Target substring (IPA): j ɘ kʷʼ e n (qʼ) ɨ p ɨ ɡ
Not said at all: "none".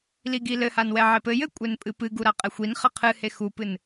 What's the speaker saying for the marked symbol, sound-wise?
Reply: pʼ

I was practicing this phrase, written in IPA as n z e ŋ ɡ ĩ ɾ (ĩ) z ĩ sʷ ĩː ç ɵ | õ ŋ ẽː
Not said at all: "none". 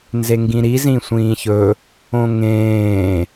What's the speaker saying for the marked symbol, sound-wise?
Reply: i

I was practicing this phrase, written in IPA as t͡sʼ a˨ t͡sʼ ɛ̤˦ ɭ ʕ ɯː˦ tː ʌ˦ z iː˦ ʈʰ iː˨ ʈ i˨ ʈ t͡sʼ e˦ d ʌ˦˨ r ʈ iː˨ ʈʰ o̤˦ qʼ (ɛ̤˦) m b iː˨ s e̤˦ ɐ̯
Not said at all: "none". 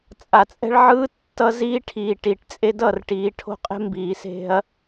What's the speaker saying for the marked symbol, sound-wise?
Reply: e̤˦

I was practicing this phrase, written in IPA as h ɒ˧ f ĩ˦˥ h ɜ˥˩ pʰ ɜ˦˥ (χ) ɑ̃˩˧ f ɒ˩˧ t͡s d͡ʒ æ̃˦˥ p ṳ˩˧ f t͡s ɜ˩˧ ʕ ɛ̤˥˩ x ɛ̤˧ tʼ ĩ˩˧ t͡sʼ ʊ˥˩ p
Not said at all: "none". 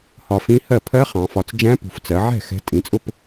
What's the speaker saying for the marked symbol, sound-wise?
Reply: χ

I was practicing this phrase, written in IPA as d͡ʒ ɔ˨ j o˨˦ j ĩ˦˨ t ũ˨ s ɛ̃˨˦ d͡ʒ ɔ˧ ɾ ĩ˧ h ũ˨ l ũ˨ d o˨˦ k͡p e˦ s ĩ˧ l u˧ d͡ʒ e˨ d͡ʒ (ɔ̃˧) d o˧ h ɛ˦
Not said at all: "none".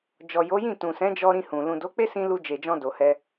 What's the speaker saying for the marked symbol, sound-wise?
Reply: ɔ̃˧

